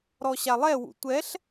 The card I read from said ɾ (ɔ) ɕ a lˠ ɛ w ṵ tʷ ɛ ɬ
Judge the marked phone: correct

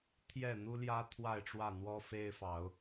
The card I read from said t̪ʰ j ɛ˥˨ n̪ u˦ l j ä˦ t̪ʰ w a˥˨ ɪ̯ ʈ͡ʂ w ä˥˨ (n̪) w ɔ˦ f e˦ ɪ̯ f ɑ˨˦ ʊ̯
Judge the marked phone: correct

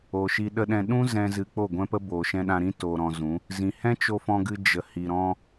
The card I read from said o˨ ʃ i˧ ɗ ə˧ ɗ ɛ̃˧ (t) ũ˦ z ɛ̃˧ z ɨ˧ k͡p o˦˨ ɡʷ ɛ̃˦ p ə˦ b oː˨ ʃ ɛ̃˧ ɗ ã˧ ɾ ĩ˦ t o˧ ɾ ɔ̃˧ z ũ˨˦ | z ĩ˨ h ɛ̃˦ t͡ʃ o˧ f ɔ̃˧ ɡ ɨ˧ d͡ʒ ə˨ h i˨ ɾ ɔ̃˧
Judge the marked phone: incorrect: ɗ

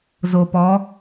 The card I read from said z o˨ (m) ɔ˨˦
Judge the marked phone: incorrect: p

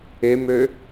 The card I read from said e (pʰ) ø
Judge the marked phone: incorrect: m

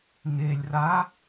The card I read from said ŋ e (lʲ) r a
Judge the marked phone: correct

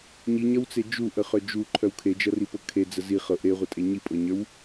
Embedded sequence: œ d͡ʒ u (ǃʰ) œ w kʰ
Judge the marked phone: correct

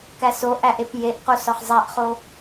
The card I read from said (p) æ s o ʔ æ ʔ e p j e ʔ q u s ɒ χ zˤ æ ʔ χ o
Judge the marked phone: incorrect: k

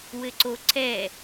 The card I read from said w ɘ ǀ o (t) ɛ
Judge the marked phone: incorrect: ǀ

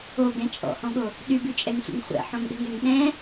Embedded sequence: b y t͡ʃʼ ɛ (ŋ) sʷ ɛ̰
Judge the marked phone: correct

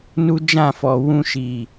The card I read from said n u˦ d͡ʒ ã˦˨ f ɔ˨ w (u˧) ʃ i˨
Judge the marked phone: incorrect: ũ˧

